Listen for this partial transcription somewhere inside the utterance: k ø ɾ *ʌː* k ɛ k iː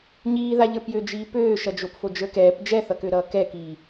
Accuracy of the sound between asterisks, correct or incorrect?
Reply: correct